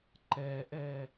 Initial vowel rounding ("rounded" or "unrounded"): unrounded